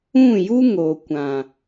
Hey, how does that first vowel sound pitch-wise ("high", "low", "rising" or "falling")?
falling